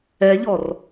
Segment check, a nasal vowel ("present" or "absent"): absent